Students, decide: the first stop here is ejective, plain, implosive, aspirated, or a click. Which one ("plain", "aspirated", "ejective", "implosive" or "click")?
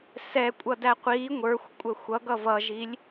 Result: ejective